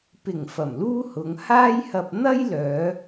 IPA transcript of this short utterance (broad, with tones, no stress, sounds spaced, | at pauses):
p ɪ˨˩ ŋ f ɐ˨˩ m l uː˥ h ʊ˨˧ ŋ h aː˥ j h ɐ˧ p̚ n̪ ɐ˥ j l œː˨˧